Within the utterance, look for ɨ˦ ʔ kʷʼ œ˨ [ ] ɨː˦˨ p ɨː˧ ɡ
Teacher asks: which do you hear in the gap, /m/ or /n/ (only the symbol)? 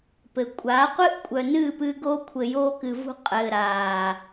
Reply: n